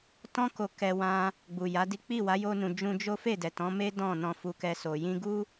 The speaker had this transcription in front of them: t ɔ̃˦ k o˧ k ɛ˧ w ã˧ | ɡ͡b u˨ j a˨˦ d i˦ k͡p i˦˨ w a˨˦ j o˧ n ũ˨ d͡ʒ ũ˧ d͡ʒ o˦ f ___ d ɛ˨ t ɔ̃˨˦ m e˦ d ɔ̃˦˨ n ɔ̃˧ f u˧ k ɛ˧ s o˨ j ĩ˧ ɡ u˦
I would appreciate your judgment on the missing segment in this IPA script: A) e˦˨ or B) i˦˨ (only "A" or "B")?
A